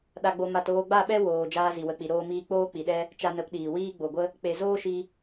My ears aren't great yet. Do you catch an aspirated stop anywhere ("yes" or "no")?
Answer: no